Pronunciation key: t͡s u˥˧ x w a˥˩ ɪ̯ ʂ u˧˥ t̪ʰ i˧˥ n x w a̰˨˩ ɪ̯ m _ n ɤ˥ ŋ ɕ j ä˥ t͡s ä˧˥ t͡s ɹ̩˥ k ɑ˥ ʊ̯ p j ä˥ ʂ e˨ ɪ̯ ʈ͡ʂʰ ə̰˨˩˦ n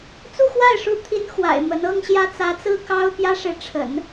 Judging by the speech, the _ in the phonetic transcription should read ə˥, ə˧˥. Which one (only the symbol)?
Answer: ə˧˥